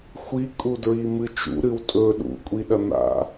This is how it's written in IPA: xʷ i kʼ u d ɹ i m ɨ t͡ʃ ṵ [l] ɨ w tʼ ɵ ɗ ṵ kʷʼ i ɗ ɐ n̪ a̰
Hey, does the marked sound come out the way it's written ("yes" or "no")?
no